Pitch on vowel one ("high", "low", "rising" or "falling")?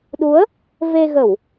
rising